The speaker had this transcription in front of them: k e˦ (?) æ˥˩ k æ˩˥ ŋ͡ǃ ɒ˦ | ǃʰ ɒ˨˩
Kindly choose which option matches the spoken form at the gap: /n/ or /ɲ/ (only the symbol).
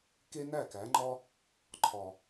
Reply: n